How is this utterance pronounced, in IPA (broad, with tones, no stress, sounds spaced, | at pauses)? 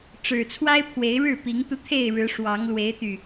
ʈ͡ʂ ɻ̩˨˩ t͡sʰ w a˦ ɪ̯ pʰ w e˨˦ ɪ̯ ɻ ɻ̩˥˨ p i˨˦ ŋ t̪ u˧ t̪ʰ e˥˨ ɪ̯ ɻ ɻ̩˨˦ ʂ w ɑ˨˦ ŋ l w e˨˦ ɪ̯ t̪ y˨˩